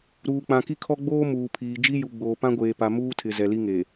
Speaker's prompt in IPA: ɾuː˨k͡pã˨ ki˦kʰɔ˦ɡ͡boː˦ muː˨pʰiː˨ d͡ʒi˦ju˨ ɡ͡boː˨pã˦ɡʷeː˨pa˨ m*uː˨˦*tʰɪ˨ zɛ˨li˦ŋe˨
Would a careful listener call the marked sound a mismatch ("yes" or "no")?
yes